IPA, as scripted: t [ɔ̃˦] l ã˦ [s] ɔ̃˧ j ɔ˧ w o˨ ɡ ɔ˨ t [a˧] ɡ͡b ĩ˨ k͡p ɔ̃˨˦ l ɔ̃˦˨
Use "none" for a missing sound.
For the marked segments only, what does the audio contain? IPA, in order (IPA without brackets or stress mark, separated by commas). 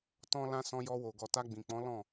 ɔ̃˦, s, a˧